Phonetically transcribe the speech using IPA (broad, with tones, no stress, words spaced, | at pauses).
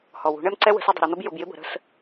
hɔ˨wṳ˨˦ɳɛ˦mǀɛ˦ wə̤˨˦s ʊ˧ dˤə̤˨ ɾɛ˧n̪ʌ˦b jʊ˧bjɪ˦bə̤˨˦ ɾə̤˧s